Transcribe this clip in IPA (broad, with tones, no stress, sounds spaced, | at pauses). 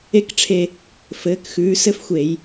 e˧˥ k ʈ͡ʂʰ e˧˩ | f ɘː˩˧ k x ʉː˩˧ s ɘ˥ f xʷ e˧˩˧ j